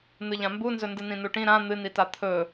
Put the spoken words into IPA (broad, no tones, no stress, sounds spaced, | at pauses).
n̪ ɨ ʎ ã m b u n z ɵ n d ɨ n ĩ n u ʈ ĩ ɾ ã n̪ ɨ n i t a t̪ʰ ɵ